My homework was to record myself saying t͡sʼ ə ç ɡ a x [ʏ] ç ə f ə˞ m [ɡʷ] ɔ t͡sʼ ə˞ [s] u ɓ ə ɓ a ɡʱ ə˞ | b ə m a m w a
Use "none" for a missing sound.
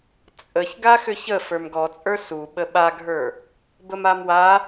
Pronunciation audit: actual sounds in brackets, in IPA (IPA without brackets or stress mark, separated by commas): ʏ, ɡ, s